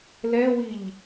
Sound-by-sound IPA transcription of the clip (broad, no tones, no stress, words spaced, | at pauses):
lɛwiʎ